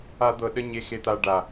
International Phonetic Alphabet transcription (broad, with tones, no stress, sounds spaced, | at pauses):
a˦ d̪ ɤ˧ ɗ ə˦ ɲ e˧ x e˧ t̪ a˧ ɖ a˨